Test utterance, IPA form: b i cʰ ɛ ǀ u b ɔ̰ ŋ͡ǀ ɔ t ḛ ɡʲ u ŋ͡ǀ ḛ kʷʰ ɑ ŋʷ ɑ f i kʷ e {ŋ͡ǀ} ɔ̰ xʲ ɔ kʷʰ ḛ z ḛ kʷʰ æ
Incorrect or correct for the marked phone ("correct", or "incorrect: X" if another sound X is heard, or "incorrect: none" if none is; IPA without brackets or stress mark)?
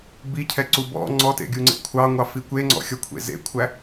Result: correct